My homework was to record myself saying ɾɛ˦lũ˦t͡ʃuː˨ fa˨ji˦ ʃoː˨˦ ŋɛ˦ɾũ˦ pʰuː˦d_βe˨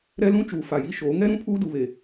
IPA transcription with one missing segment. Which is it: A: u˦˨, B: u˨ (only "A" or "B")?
B